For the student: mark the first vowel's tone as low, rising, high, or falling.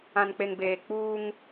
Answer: low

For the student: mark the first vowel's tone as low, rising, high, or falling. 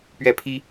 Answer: falling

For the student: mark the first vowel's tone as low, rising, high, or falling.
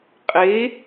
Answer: rising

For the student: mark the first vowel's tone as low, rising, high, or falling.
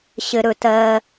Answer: high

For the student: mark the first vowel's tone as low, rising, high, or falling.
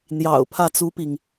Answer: low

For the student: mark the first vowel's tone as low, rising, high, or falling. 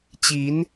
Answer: rising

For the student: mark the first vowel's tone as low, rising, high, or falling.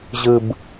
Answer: low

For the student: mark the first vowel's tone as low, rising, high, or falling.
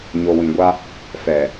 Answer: low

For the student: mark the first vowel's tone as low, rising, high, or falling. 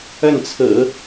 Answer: falling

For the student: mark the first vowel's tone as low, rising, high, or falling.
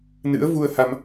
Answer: rising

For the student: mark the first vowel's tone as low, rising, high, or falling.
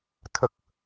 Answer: low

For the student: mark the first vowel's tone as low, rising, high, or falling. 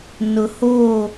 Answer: low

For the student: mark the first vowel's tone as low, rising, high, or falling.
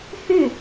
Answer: falling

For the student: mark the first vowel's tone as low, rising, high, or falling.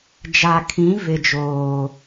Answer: low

